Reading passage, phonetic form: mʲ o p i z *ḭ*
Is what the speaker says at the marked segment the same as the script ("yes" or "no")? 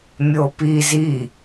no